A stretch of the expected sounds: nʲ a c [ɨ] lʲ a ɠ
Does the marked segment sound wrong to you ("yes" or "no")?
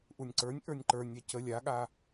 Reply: yes